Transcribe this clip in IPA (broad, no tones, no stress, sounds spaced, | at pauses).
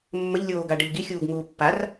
mː ə ʎ lʲ oː ɡ a ɖ ə ʎ ɡ i xʲ uː ɡ ŋ uː pː a r